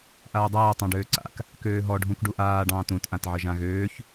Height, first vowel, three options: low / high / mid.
low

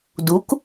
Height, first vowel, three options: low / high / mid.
high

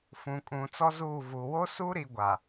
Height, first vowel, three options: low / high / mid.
high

